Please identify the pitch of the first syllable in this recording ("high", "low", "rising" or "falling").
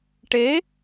rising